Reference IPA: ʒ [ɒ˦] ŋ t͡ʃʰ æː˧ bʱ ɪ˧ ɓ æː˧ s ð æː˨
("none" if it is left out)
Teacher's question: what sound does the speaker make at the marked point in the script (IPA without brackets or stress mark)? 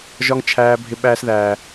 ɒ˦